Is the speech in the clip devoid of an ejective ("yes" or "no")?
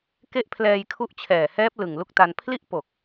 yes